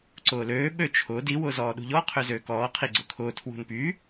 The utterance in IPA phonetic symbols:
ǀʊːløː ɓøt͡ʃʰʊːd i wʊːzɔːɗṳʎɔ qʰøzøːkɔː qʰiɡ͡ǀʊkʰʊː tʰwṳnpy

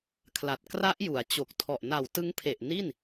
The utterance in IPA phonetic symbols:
kʰla˨˩t̚ kra˦˥ʔju˩˦a̯ t͡ɕo˨˩k̚tʰɔ˨˩ʔ na˨˩wtɯ˦˥ŋpʰe˨˩ʔ ni˥˩n

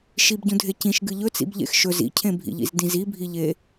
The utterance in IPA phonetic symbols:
ʃibɟũdʱe cĩʃ ɡɨʎɵt͡sḭb ʎḛxʃɵz ḭcʰẽbʱḭʎḭz dĩzibʱiʎe

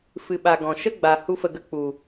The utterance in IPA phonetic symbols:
fɨ˨ɓa˨ ɡɔ̃˨ ʃə˦ɡ͡ba˨ hu˦fə˧ɡə˦ k͡pu˨

